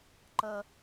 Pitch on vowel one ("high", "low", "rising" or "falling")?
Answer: high